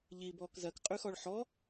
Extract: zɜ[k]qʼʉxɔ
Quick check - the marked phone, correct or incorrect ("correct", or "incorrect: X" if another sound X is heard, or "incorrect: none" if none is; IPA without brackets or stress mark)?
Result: correct